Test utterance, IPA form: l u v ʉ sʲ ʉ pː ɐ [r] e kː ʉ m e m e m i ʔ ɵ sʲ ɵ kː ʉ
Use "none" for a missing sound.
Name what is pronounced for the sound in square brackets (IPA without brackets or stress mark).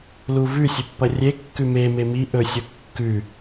rʲ